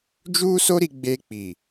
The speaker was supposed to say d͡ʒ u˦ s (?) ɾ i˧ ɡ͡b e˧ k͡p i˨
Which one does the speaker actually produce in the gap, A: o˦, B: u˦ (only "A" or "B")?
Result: A